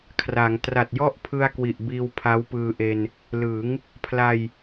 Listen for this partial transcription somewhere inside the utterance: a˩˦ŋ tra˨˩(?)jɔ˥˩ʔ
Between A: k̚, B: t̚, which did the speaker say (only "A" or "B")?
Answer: B